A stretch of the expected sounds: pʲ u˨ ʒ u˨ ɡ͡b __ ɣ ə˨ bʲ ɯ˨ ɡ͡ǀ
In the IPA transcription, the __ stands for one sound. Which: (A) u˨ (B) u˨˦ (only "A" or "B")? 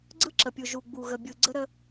A